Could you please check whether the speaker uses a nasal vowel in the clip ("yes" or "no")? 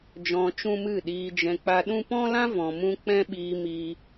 yes